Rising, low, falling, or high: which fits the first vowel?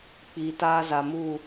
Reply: low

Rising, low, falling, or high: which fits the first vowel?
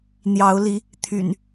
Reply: rising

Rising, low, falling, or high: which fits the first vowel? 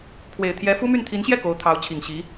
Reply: low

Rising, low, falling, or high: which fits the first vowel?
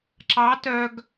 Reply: rising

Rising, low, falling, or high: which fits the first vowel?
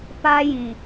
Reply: high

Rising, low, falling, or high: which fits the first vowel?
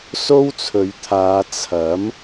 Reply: high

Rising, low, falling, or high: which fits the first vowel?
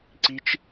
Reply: high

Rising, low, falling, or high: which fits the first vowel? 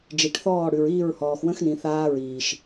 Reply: low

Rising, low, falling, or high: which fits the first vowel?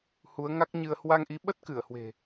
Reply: rising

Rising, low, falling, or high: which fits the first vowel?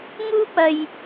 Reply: high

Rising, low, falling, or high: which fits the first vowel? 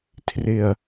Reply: low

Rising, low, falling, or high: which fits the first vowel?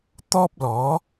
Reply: high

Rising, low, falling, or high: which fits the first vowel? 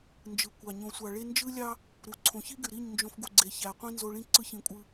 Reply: low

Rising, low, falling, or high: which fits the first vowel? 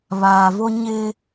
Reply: low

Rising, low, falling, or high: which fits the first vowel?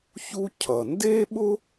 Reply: high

